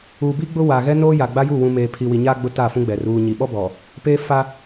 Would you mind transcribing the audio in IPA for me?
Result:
uː˨ b i˦ ɡ͡b ʊ˦ w a˨ ɣ ɛ˦ n oː˦ j a˨ ɡ͡b a˦ j u˦˨ w ũ˨ m eː˨ pʰ i˨ w i˨ ɲ aː˦ ɡ͡b ʊ˦ t a˦˨ f ũ˦ ɡ͡b ɛ˨ r uː˨ ɲ i˨ ɓ ɔ˦ b ɔ˨ | p eː˦ f a˦

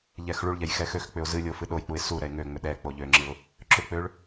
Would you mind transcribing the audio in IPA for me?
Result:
ʎ ɛ x ɭ u ɭ ʎ ɛ j x ɛ x ø x k͡p ʏ ʊ̯ z ɨ lʲ o f ɨ ɗ o j k͡p u ɪ̯ s u ɾ ɛ ɪ̯ ŋ ø ŋ͡m ʏ ɗ ɛ k͡p o ʎ ø ŋ͡ǁ ɨ ʊ̯ | ǁ ʏ k͡p ø ɭ

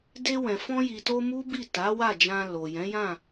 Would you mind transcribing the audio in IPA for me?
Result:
d e˧ w ɛ̃˨ f ɔ̃˧ j i˨ t o˧ m u˦ b i˦˨ t a˨˦ w a˦˨ d͡ʒ ã˧ l o˨ j ɛ̃˨˦ j ã˦˨

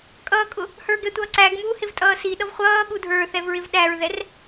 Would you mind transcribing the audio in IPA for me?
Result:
kʼ ʌː kʼ ʊ | h ə˞ ɡ ɛ tʷ ʌː ǀ æː ɡ m uː h ɪ v tʼ ʌː s i ɗ ʌ v χʷ ʌː ɠ u dʱ ə˞ θ ɛ v ɹ ɪ v ɗ æ ɹ ð ɛ r

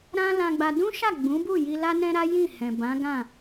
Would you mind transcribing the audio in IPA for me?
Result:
ɾ ã˦ l ã˧ ɡ͡b a˧ d ũ˦ ʃ a˦˨ ɡ͡b ũ˨˦ b u˦˨ j i˧ l a˦ n ɛ̃˦ ɾ a˦ j ĩ˦˨ h ɛ̃˨ b ã˨˦ ɡ ã˦˨

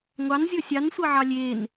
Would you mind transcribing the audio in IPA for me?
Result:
ŋʷ ɑ n zʲ ɤ sʲ ɑ n sʷ ɤ ʕ ɑ lʲ e n

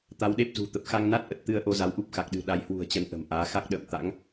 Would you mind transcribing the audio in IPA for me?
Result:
t̪ a˨˦ w ɗ e˦˥ p̚ z ṳ˨˩ t̪ ə˨˩ p̚ x a˧ ŋ n a˦˥ t̚ ʔ ə˨˩ t̚ t̪ ɨ˧ ə̯ ʔ o˧ z a˨˦ w ʔ u˦˥ p̚ x a˨˩ k̚ ɗ ɨ̤˨˩ ɗ a˨˦ j h w ṳ˨˩ ə̯ t͡ɕ ə˨˦ n ʔ ə̤˨˩ m ʔ aː˨˦ x a˦˥ k̚ ɗ ə̰ː˧˨ m t̪ a̰˧˥ ŋ

